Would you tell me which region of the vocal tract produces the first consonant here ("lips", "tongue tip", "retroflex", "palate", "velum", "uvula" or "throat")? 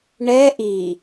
retroflex